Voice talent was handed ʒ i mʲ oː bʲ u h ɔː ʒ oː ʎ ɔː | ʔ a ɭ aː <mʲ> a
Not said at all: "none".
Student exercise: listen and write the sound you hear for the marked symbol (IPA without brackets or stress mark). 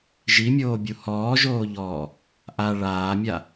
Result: mʲ